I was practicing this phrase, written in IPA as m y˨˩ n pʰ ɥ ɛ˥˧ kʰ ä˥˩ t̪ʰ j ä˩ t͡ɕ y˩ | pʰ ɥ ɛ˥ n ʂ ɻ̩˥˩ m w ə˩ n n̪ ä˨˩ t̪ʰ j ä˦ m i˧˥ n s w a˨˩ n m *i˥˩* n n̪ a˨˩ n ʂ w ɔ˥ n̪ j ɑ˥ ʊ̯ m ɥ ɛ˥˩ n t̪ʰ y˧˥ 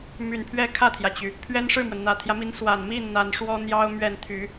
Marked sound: correct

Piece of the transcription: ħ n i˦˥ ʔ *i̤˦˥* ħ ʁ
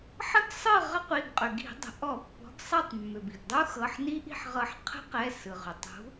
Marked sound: incorrect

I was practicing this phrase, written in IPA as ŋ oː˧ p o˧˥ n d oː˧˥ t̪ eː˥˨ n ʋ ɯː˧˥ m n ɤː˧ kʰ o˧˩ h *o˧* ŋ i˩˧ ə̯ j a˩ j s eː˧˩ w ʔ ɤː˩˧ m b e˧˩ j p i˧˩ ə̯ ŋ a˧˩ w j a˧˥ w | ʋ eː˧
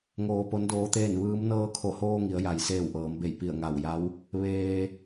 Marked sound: incorrect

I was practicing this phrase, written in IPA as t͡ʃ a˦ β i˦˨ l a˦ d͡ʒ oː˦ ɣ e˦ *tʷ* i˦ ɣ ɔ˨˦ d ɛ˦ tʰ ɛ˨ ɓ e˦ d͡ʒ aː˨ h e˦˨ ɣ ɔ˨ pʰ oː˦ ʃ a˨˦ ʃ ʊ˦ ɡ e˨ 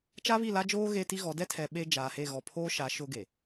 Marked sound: incorrect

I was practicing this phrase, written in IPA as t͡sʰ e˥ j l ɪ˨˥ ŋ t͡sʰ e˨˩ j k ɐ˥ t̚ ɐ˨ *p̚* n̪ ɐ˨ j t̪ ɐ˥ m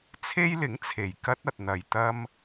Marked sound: incorrect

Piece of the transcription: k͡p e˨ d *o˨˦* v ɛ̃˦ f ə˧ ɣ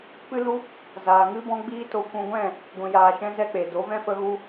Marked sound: correct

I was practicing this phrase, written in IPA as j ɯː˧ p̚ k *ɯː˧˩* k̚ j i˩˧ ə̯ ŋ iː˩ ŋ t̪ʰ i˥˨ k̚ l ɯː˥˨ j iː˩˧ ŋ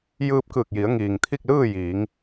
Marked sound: correct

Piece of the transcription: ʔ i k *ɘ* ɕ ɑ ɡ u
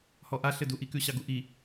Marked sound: incorrect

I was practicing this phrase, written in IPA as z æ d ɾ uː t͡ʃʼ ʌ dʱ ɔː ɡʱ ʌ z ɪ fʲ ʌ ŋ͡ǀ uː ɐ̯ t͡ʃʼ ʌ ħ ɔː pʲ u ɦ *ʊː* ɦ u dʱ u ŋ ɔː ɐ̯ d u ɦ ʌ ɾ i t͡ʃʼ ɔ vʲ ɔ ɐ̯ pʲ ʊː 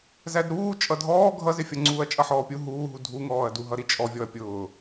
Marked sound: incorrect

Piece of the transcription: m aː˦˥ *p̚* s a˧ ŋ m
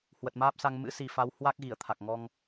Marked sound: correct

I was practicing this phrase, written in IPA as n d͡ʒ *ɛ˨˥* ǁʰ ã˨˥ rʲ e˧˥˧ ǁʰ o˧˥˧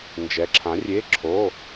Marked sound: correct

